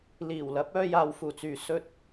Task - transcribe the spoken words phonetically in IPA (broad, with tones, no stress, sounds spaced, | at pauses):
l iː˨˩ w l ɐ˨˥ p̚ œː˧ j aː˨ w f uː˨˩ t͡s yː˨ s ɵ˧ t̚